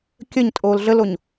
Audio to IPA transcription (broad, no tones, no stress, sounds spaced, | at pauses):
kʲ ə ɲ tʼ oː l ɮ ə l o ɲ